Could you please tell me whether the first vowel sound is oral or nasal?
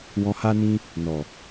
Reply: nasal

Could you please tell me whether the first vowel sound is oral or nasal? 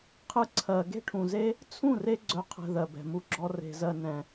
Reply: oral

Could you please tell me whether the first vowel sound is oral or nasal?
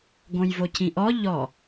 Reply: nasal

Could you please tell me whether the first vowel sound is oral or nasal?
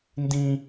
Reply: nasal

